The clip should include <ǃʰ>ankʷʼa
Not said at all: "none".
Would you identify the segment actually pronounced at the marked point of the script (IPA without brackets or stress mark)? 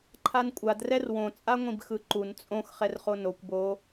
ǃʰ